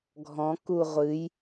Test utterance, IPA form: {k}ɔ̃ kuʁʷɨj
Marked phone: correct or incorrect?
incorrect